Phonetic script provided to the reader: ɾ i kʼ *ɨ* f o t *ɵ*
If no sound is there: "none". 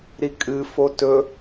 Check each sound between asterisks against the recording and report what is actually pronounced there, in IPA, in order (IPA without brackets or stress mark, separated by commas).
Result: ɨ, ɵ